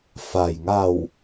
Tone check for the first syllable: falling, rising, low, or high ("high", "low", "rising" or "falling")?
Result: low